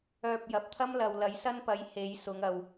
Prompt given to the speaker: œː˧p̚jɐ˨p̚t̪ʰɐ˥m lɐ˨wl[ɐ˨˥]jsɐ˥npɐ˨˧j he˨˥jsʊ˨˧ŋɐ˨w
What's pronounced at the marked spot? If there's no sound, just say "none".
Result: ɐ˨˥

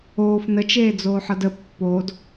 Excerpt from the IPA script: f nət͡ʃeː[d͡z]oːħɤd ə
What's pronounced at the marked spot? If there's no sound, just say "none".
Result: d͡z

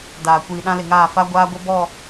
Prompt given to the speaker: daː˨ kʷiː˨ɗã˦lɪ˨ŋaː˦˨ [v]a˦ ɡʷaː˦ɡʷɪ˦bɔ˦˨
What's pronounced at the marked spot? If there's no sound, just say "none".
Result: f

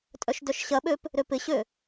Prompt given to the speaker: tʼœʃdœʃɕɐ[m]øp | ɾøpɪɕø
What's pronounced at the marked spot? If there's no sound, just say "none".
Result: ɓ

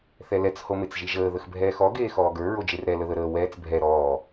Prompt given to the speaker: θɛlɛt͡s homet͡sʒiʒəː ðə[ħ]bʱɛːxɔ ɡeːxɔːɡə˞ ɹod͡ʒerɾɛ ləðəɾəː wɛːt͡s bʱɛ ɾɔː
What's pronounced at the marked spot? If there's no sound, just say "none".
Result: x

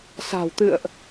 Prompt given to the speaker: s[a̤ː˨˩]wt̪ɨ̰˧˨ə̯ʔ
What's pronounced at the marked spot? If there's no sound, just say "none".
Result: a̤ː˨˩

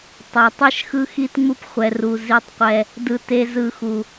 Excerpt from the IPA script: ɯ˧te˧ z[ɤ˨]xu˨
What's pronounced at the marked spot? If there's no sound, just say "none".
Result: ɯ˨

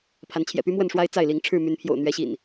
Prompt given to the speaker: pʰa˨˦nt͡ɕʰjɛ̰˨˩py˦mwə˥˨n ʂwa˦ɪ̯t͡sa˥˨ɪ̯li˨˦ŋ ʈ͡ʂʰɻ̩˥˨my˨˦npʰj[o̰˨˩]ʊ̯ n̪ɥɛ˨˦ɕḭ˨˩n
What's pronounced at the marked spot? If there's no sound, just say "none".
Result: o̰˨˩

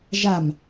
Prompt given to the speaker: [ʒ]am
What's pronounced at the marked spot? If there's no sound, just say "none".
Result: ʒ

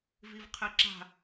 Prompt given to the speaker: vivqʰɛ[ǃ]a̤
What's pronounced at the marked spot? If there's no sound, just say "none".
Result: ǁ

